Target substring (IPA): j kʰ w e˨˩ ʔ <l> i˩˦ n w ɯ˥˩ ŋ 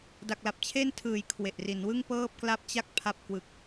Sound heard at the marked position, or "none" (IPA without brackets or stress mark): r